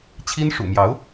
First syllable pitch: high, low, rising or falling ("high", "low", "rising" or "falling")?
high